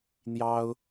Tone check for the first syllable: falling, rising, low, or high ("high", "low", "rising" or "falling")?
high